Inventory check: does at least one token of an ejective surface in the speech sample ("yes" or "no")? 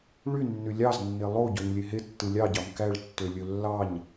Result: no